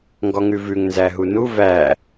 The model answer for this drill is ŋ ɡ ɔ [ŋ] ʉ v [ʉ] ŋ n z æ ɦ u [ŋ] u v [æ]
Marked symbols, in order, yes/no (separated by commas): yes, yes, no, yes